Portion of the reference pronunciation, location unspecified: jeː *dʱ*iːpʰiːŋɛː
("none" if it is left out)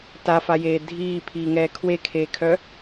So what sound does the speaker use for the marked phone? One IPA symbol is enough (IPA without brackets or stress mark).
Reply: dʱ